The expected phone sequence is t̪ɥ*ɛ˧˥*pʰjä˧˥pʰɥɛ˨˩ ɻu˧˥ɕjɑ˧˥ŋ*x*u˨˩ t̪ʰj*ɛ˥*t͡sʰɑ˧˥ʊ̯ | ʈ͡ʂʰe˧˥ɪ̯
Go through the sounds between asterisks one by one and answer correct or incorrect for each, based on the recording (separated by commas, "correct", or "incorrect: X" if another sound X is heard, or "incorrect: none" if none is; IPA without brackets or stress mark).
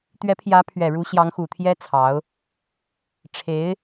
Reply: correct, correct, correct